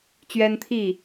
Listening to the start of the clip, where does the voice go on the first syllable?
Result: high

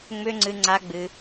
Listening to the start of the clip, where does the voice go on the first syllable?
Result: high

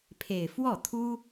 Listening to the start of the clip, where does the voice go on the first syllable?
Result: falling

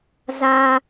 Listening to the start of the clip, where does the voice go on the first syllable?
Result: high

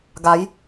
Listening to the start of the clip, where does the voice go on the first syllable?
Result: rising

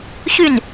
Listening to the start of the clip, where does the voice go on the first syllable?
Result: falling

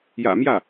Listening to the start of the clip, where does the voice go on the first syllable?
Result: low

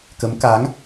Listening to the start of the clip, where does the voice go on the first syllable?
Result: rising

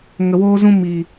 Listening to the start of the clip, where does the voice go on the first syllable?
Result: low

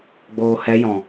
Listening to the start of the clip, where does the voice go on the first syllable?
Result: low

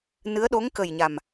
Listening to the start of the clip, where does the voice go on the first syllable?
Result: rising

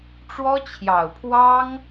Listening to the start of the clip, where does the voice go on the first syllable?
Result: high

